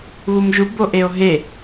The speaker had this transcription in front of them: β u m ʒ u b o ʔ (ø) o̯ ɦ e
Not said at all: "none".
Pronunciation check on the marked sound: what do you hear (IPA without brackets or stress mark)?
e